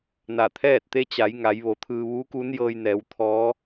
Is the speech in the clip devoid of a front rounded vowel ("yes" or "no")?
yes